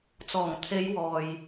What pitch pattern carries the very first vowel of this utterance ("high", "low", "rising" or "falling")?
low